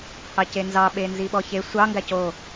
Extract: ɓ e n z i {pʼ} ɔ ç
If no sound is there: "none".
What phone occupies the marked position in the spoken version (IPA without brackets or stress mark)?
ɓ